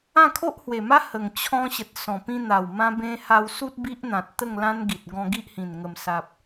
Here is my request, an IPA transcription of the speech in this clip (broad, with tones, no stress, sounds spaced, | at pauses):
ã˥˧ kʰ o˦ ʔ h w e˨˩ m a˦ h ə˨˩ ŋ t͡ɕʰ ɔ̃˧ ɕ ə˨ t̚ s ɔ̃˨˩ p ĩ˧ n̪ a˨˩ w m ã˦ b ẽ˦ h a˧ w s u˦ t̚ b i˦ ʔ n̪ ã˨ t̚ t̪ ə˥˧ ŋ l ã˦ n ɡ i˨ t̚ ɡ ɔ̃˧ ɡ i˦ ʔ h ĩ˨˩ n ŋ ə˨˩ m s a˨ p̚